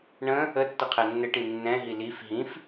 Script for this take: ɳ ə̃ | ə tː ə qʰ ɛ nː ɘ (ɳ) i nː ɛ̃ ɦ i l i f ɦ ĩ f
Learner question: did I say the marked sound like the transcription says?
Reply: no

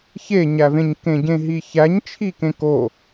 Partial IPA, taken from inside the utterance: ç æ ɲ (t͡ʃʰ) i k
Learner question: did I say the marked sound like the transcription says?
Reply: yes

